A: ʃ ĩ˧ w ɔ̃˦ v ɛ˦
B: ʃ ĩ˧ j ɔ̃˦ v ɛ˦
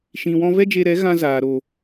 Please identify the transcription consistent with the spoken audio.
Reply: A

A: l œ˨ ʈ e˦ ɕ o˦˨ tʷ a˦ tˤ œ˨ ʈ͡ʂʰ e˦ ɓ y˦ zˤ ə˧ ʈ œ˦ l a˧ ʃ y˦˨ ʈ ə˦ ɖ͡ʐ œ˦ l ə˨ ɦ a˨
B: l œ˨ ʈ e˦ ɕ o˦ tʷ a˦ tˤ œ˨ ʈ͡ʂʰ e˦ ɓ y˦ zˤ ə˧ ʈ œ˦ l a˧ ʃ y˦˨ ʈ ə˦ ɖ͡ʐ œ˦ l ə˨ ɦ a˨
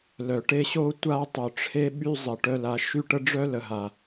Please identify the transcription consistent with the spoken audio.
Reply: B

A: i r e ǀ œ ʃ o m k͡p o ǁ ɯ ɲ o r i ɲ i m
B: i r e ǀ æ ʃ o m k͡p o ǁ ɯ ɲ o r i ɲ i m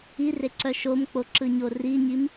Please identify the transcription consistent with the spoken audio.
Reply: A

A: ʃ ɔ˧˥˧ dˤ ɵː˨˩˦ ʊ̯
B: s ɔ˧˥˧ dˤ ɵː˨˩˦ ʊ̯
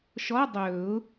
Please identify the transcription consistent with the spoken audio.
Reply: A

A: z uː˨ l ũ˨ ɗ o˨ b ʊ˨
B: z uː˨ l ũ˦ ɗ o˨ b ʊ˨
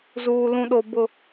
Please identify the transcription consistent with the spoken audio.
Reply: A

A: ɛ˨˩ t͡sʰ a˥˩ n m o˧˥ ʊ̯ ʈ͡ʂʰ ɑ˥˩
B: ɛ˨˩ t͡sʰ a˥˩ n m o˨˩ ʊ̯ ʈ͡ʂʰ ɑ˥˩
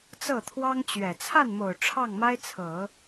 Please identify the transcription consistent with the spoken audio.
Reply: B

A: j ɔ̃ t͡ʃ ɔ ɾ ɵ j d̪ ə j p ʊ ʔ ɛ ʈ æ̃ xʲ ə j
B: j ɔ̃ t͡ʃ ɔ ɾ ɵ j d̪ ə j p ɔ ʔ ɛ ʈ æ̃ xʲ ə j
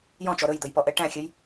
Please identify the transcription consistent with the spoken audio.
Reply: B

